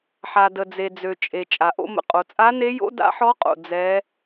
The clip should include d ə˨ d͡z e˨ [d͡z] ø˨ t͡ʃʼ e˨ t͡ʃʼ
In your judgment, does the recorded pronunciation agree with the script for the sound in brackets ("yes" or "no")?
yes